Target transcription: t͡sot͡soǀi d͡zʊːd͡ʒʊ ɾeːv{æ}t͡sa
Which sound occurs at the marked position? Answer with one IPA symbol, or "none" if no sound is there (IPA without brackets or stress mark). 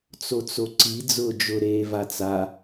a